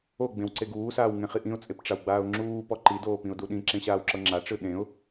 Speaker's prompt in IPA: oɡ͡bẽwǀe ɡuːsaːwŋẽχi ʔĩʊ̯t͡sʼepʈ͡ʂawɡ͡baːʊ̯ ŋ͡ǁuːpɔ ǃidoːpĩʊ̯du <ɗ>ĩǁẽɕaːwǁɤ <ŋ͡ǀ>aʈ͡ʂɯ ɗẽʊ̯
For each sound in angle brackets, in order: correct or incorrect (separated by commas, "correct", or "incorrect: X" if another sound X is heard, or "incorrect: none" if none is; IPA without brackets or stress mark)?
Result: correct, incorrect: ŋ͡ǁ